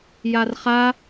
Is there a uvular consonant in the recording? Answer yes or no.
yes